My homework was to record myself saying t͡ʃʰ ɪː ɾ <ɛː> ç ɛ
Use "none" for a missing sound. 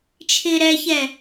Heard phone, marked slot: ɛ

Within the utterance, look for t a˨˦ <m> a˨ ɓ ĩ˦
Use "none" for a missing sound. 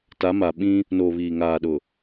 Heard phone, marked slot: m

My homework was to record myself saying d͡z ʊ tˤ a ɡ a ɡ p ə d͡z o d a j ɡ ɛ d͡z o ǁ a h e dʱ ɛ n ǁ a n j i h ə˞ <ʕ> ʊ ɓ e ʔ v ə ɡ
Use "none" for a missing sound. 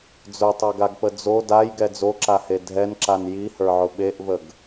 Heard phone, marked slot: ʕ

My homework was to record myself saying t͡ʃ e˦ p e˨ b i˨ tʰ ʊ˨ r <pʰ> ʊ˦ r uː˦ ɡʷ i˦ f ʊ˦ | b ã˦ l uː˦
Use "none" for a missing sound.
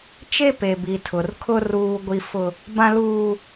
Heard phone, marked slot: kʰ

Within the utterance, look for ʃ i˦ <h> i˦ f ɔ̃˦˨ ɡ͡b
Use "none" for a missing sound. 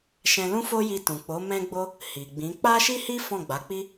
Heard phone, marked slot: h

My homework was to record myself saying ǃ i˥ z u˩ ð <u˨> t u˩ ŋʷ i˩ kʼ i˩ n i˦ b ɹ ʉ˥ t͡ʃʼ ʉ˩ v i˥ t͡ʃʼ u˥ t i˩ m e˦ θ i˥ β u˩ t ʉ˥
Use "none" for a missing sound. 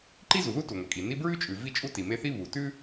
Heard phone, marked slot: u˥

